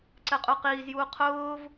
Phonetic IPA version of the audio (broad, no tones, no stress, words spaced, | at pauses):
ǀɛqʼuqiːzjuː qʰʊːv